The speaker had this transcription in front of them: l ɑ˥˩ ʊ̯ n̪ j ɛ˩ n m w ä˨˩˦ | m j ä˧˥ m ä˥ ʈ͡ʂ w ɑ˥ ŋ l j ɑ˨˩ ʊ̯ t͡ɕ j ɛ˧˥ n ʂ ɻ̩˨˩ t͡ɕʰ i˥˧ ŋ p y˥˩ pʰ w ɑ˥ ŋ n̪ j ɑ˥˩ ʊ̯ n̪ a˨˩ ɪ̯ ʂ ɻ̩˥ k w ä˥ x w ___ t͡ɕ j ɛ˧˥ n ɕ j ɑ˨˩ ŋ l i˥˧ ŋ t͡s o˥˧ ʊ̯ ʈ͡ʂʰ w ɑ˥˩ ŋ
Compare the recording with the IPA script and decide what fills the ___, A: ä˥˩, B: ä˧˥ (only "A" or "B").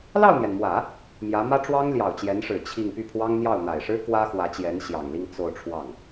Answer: B